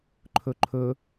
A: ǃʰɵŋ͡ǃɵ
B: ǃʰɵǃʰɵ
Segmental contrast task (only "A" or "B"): B